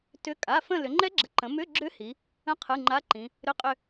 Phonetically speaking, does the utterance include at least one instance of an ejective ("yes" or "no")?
yes